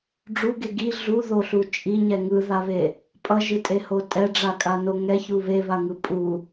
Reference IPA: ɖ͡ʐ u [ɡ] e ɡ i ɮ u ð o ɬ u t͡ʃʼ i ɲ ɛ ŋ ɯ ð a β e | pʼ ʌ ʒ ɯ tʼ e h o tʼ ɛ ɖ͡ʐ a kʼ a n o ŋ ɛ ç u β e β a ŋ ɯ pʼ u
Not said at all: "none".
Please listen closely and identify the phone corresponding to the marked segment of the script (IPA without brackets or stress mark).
ɡ